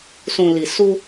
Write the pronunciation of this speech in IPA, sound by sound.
s ũ˨ l i˨ s u˦

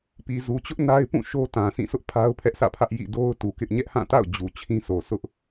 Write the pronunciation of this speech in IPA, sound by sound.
p i˨ z u˨ t͡ɕ ʊ˦ ʔ n a˦ ɪ̯ p ũ˦˨ ʃ o˦ t ã˨ s ĩ˦˨ s ʊ˦ ʔ pʰ a˦ ʊ̯ pʰ ɛ˦ ʔ s ä̰˦˨ pʰ ä˦ ʔ j ḭ˦˨ d o˦ ʊ̯ t u˨ k ɪ˦ ʔ ɲ ɛ˦ ʔ h ã˦˨ t a̰˦˨ ʊ̯ d͡ʑ u˨ t͡ɕʰ ĩ˦ sʰ o˨ sʰ ʊ˦ ʔ

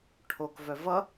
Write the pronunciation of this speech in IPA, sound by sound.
ʈʰ o k v œ v ʌ

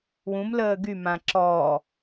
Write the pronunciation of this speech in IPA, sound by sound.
w ũ m l əː ɡ y m ã ǁ ɔː

